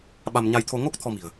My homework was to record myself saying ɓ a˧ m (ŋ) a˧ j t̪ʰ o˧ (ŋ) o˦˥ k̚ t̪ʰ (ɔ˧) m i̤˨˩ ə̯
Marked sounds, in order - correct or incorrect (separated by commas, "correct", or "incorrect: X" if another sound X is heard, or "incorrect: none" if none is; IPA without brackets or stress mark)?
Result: incorrect: ɲ, correct, correct